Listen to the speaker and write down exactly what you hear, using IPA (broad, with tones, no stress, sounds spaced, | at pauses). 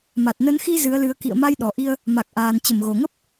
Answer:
m a˨˩ t̚ n ə˨˦ n x i˧ z ɨ˨˦ ə̯ l ɨ˨˦ ə̯ k ḭ˧˨ ə̯ m a˧ j ɗ ɔ˨˩ ʔ i˧ ə̯ | m a˨˩ k̚ ʔ aː˨˩ n t͡ɕ ə˧˩ m ɣ o˨˩ ŋ ə˦˥ p̚